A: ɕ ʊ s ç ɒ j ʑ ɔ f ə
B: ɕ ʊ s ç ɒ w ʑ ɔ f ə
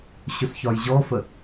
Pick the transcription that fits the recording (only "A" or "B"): A